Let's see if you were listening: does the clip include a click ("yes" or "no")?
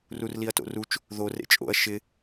no